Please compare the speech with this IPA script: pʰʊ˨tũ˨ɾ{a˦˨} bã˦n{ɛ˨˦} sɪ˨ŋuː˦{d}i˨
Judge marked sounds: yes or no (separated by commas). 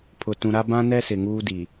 no, no, yes